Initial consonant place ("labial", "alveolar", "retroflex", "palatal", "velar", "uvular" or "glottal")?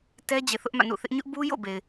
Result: alveolar